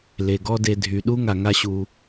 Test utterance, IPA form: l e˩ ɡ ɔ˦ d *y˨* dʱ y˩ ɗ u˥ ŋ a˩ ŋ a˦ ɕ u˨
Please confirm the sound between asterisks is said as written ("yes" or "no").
no